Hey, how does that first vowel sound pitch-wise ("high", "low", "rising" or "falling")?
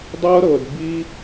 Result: high